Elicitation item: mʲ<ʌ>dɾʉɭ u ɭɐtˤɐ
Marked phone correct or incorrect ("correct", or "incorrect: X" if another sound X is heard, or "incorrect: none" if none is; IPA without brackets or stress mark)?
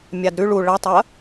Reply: incorrect: a